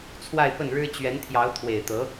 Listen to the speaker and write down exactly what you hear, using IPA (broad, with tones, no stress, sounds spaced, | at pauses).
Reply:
t͡sʰ w a˥˧ ɪ̯ p ə˥˩ n ɻ ɻ̩˥ t͡ɕ ɥ ɛ˧˥ n t̪ʰ j ɑ˧˥ ʊ̯ t̪ʰ w e˨˩ ɪ̯ t̪ ɤ˧˥